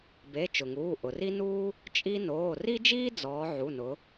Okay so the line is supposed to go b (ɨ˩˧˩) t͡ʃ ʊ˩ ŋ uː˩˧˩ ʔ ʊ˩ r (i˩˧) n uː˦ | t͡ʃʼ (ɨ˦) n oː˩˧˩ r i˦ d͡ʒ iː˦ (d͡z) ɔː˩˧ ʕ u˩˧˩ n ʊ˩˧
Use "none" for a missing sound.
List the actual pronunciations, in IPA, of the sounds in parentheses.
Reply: e˩˧˩, i˦, i˦, d͡z

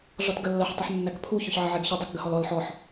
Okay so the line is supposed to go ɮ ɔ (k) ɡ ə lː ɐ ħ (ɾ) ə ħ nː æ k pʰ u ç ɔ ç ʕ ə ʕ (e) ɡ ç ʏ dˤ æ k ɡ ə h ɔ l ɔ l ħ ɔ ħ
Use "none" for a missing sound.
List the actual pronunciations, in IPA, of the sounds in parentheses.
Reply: t, tˤ, e

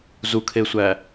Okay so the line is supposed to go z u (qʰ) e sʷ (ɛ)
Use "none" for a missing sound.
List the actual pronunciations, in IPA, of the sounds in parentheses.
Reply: kʰ, æ

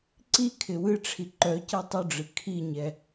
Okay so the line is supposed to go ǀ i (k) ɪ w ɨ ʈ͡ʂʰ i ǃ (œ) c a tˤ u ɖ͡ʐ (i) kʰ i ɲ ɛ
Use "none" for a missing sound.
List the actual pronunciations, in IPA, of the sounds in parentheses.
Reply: kʰ, œ, ɨ

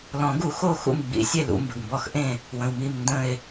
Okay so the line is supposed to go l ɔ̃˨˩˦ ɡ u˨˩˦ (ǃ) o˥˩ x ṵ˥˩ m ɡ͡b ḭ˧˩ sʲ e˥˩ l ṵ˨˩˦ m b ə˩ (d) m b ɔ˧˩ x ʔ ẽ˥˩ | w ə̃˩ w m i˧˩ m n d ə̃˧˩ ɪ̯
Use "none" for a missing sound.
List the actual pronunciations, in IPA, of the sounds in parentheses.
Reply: x, ɡ

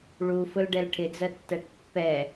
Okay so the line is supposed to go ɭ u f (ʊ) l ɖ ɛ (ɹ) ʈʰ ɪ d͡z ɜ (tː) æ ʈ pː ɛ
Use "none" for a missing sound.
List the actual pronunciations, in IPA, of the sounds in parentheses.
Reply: ʊ, l, tː

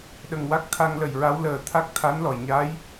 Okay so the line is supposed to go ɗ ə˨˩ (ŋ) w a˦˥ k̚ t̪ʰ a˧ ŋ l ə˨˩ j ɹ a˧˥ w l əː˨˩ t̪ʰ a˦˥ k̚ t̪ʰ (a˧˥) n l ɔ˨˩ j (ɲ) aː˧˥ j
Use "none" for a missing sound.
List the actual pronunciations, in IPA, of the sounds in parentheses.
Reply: ŋ, a˧˥, ɲ

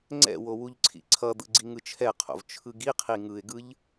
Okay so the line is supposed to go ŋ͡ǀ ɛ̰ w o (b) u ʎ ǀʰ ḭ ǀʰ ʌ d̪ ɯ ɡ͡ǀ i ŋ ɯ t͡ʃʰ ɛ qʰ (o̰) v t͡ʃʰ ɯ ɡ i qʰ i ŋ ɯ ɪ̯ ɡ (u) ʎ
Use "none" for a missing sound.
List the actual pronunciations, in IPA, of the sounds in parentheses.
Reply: w, o̰, ɯ

